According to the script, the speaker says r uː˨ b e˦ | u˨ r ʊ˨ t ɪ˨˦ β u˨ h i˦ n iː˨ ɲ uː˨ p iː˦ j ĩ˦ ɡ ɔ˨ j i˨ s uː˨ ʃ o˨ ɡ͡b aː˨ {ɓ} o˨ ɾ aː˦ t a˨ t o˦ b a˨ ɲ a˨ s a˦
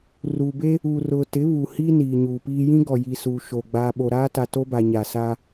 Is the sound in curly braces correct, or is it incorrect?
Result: correct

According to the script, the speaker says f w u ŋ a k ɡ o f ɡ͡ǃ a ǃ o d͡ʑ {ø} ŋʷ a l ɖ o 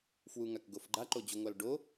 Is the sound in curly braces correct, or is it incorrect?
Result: incorrect: u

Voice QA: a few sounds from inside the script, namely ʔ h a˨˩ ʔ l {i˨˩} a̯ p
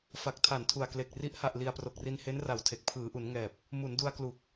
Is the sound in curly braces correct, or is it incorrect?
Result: correct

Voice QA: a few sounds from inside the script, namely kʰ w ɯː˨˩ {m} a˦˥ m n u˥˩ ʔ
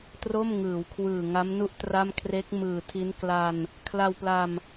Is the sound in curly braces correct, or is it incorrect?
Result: incorrect: ŋ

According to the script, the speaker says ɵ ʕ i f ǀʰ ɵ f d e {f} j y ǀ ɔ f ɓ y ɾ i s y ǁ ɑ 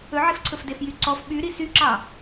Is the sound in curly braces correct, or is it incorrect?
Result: correct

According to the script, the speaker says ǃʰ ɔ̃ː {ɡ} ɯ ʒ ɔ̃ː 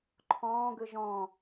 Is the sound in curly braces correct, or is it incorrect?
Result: correct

